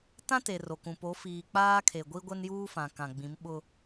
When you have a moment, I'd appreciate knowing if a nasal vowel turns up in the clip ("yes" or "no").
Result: yes